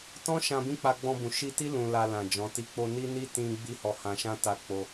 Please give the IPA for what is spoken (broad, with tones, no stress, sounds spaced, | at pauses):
t ɔ̃˦ ʃ ã˧ b ĩ˦ k͡p a˧ ɡ͡b ɔ̃˧ b ũ˨ ʃ i˧ t i˦ l ũ˧ l a˧ l ã˨ d͡ʒ ɔ̃˨˦ t i˦ k͡p o˧ n i˦ n i˦ t ĩ˧ ɡ͡b i˦ h ɔ˧ h ã˧ ʃ ã˦ t a˦ k͡p o˦